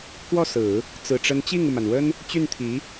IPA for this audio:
k w ɔ˥˩ s ɹ̩˨˩˦ | t͡s ɹ̩˨˩ ʈ͡ʂ ə˧˥ n t͡ɕ i˥˩ ŋ u˩ m a˩ n w ə˥ n | t͡ɕ y˥˩ n t̪ʰ i˧˥

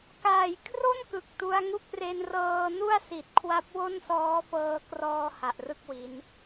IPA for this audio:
k aː˨˩ j kʰ r o˥˩ n k ɯ˨˩ k̚ t u˦˥ a̯ ŋ u˥˩ k̚ r e˧ n r ɤː˧ n u˥˩ a̯ s i˨˩ t̚ kʰ w a˦˥ p̚ w o˥˩ n s ɔː˦˥ f ɤː˧ k r ɔː˧ h a˨˩ ʔ r ɯ˥˩ k̚ w i˦˥ n

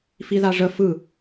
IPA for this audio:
f i ð a ʐ ə f ɯ

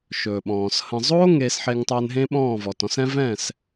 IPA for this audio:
ʃ ɵː˨ ɓ ɔ̃ː˨ s h ə̃˨ zˤ oː˦ ŋ eː˧ s ħ e˧ ŋ tˤ ɵː˧ n ɦ ẽ˦ ɓ ɔ̃ː˦˨ v ɔ˨ t ɔ̃˧ s ɛ̃˦ v ɛ̃ː˦˨ s

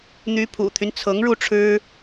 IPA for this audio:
n̪ y˧˥ pʰ ṵ˨˩ t̪ʰ y˦ n t͡sʰ ɤ˧˥ ŋ ɻ u˥˩ ʈ͡ʂʰ ɻ̩˥

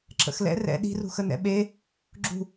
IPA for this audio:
ǁ ə̰ x l ɛ̰ r ɛ̰ ɗ i̤ r ṳ x ə n ɛ̰ ɓ e | ɡ͡ǁ ṳ

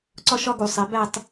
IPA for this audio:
ǀ ɒ˥ ʃ ɒ˥ ɡ u˧˩˧ sˤ e˩˥ b æ˥˧ tˤ

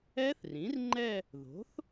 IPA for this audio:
ɛ˦˥ θ r ĩ˩˥ r ŋ͡ǃ ɛ˥˧ | ð o̤˩˥ θ

